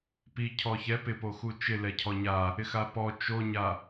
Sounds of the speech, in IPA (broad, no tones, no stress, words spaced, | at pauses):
pi cʰɔçɛ pɪpoxu t͡ʃɪ lɛcʰɔɲa | ɪxapɔ t͡ʃoɲa